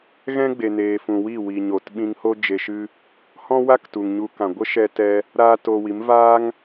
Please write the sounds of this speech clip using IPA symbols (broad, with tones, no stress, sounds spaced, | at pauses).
ɣ ɛ̃˦ ɡ͡b e˨ n eː˨ f ũ˨ w i˦˨ w i˨ ɲ o˨ t ɓ ĩ˧ ŋ h o˦ d͡ʒ e˧ ʃ ɨ˦ | h ɔ̃˦ w a˦ k t u˨ ŋ ɲ u˧ k ã˨ ɡʷ ə˦ ʃ ɛ˦ t ɛ˦ | ɾ aː˦ t o˧ w i˨˦ m v aː˦ ŋ